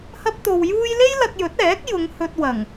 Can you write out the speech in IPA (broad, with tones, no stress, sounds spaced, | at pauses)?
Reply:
h ɐ˥ p̚ t̪ o˧ w j uː˥ j l e˥ j l ɐ˧ k̚ j ɵ˨˥ t̚ ɛː˨˥ k̚ j ʊ˨˧ ŋ h ɵ˧ t̚ w ɐ˨˩ ŋ